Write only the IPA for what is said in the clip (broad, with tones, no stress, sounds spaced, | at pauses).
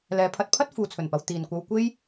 l ɛː˨˧ pʰ ɐ˨˥ t̚ pʰ ɐ˥ t̚ f uː˨ t͡sʰ ɵ˨˩ n p ɐ˨ w t̪ iː˧ n kʷ ɐ˥ w kʷ e˥ j